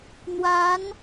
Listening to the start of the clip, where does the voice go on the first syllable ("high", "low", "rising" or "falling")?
rising